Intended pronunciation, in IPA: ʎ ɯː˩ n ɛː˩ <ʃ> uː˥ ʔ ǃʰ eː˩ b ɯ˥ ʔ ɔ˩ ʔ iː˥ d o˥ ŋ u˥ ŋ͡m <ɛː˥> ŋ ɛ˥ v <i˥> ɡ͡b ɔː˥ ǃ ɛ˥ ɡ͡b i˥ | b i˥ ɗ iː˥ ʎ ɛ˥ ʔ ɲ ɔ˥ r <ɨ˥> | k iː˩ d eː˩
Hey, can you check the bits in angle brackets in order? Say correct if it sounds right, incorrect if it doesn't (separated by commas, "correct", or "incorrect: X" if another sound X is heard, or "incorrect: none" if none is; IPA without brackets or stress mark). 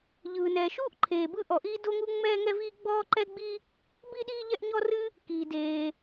correct, correct, correct, correct